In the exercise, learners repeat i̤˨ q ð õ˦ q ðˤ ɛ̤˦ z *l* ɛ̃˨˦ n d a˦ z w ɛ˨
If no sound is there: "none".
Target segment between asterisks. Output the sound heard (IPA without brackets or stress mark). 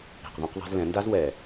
l